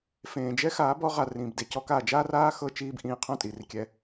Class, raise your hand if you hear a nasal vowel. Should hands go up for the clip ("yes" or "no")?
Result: yes